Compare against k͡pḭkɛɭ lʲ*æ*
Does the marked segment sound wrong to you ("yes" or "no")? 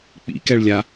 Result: yes